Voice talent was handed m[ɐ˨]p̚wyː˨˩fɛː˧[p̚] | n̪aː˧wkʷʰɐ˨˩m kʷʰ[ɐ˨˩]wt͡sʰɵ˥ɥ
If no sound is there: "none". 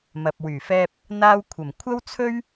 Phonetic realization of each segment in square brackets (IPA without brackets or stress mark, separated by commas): ɐ˨, p̚, ɐ˥